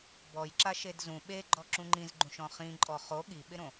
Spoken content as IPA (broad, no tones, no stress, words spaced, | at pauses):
bɔjǁa ʃedzũ ɓeɡ͡ǃɔ ǁũŋ͡ǃĩzɡ͡ǃũʃɔ̃ χĩ ǃʼɔχo ɠiɓɪɾõ